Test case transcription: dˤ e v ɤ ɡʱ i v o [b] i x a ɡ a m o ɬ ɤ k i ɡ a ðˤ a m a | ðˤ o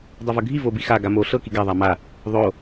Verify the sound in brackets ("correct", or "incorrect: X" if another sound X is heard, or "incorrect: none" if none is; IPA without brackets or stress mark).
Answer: correct